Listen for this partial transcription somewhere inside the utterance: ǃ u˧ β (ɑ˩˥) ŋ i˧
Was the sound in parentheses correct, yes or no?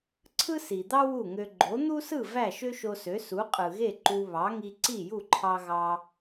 yes